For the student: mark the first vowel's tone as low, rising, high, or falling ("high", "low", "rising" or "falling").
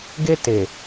high